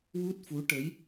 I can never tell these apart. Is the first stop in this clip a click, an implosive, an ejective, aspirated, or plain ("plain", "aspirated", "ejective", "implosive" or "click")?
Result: plain